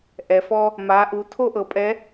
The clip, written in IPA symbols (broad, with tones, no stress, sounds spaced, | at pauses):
ʔ ɛ˩ f ɔ˧ | m a˩˧ ʔ u˩˧ tʰ o˥ ʔ ɤ˩˧ pʼ ɛ˧˥